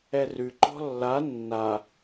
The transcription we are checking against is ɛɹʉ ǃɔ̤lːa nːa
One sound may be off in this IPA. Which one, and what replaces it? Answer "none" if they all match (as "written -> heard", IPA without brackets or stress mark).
ɹ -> r